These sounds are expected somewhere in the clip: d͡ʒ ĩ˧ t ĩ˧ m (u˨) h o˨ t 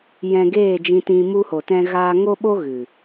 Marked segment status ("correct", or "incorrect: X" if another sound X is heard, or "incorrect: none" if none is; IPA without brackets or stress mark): incorrect: u˧